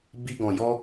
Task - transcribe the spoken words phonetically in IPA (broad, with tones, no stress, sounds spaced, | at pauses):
b i˦ ɡ ɔ̃˧ j ɔ˦